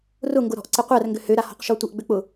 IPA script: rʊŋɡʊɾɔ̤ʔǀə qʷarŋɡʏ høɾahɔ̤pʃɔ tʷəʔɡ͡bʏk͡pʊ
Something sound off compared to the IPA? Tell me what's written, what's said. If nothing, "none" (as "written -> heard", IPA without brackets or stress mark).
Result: p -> q